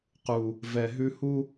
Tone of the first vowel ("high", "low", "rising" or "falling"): low